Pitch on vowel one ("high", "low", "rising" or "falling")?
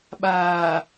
low